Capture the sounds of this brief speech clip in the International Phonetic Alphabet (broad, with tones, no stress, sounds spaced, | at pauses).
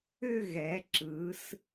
ʏ˥˧ ɣ ɛ˩˧ ǁ ɯ˩˧ s